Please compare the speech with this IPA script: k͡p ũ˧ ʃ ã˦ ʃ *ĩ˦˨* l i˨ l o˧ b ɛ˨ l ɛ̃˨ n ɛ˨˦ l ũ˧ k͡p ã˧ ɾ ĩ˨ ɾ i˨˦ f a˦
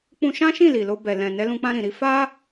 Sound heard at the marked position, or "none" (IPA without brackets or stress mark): ĩ˦˨